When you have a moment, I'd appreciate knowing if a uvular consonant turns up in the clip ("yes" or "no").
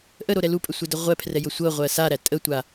yes